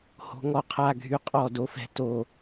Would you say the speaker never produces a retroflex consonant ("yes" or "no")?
yes